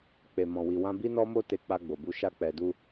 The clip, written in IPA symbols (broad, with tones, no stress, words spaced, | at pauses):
k͡pe˧mɔ̃˧wi˧wã˦ bi˦nɔ˦mo˦te˧ k͡pa˧ɡ͡bo˨bu˧ ʃa˧k͡pɛ˨du˧